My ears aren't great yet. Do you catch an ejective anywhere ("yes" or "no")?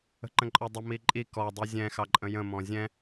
yes